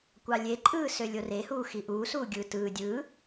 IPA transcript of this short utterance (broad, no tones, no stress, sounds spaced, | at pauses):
kʷ ɑ lʲ e ǃʼ ɯː s ø lʲ o r e h uː x i ʔ uː s uː ɡʲ ɯ t ɯː dʲ ɯː